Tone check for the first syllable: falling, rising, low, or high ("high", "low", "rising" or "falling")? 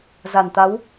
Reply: low